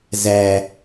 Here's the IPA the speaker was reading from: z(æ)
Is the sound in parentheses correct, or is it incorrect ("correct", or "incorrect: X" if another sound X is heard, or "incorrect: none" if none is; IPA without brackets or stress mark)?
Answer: correct